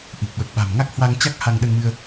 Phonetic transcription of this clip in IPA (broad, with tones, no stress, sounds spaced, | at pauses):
ʔ i˨˩ k̚ ɓ ə˨˩ p̚ ɓ a̤˨˩ m ŋ a˦˥ k̚ h w a˧ ŋ t͡ɕ a˦˥ k̚ h a˧ ŋ ɗ ə˧ n m ɨ˧ ə̯